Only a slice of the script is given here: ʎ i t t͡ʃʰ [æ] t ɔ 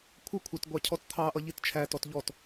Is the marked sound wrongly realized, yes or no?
no